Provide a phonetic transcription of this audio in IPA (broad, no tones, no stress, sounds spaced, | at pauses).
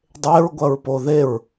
dˤ e ɹ ɡʷ ɐ ɹ p o ð e ɹ